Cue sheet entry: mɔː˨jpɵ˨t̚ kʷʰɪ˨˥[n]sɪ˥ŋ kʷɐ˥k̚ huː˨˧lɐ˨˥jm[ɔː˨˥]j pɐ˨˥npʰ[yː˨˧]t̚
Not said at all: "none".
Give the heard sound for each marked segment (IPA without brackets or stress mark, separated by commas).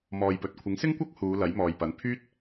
ŋ, ɔː˨, yː˥